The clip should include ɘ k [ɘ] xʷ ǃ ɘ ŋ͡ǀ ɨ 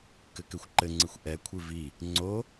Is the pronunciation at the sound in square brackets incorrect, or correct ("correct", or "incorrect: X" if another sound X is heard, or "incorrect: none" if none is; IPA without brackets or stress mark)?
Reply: correct